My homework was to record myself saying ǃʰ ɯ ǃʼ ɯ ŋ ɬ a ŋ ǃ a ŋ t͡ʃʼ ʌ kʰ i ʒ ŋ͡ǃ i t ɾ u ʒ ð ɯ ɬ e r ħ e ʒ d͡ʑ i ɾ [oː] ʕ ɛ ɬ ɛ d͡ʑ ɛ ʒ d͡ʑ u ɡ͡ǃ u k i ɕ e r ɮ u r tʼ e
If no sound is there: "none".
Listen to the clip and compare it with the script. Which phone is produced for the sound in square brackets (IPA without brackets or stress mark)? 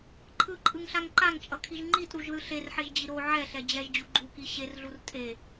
o